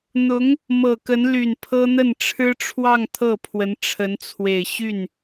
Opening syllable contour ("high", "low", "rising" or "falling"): rising